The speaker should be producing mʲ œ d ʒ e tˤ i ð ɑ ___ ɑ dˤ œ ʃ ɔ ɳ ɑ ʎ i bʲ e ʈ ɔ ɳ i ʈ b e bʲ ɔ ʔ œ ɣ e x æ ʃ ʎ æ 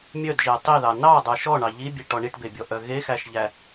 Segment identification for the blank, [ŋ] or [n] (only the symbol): n